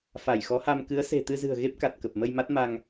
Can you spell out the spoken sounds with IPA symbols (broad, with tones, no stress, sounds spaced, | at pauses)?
f a˧˩ j x ɔ˨˦ h a˧ m k ɨ˨˦ ə̯ s e̤˨˩ t̪ ɨ˧ z ɨ̤˨˩ ə̯ ɣ e˦˥ p̚ k a˨˩ t̚ k ə˨˩ p̚ m ə˧ j m a˦˥ t̚ m a˧ ŋ